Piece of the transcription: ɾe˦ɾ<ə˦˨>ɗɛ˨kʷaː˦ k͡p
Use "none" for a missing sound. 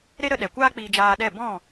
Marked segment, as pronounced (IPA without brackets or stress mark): ə˧